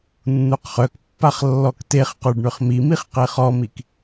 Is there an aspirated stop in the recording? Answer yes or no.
no